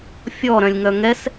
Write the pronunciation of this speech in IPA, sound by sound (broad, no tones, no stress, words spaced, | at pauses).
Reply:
fʲɔɾœ̃lʲ ŋœŋɛs